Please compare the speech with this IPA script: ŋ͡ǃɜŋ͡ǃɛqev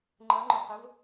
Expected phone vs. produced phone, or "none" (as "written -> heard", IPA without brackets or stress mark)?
ɛ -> œ